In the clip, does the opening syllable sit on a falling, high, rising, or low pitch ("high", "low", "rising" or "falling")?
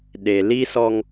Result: low